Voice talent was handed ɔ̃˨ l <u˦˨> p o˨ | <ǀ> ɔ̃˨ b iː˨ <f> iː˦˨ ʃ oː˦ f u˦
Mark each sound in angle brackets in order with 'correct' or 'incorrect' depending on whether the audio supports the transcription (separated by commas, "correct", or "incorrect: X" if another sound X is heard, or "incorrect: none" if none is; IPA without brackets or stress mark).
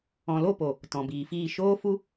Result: incorrect: o˦˨, incorrect: t, correct